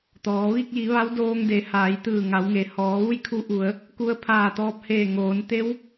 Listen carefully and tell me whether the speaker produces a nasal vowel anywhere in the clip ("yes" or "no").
no